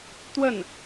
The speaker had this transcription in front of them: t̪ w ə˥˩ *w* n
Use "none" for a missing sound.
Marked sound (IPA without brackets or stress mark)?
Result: none